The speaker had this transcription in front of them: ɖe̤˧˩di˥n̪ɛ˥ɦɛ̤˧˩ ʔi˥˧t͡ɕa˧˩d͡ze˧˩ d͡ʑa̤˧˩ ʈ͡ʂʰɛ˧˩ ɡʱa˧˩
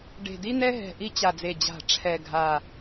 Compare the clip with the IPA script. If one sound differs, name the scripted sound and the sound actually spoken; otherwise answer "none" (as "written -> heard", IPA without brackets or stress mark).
none